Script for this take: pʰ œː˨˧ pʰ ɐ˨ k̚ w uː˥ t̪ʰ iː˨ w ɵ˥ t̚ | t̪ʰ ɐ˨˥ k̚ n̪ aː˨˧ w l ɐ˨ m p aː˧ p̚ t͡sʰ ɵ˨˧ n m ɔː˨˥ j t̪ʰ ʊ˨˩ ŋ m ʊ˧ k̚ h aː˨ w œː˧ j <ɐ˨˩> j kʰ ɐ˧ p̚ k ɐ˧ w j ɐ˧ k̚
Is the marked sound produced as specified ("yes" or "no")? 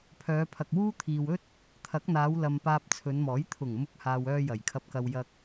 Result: yes